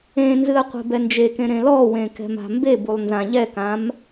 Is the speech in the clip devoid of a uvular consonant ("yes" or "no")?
no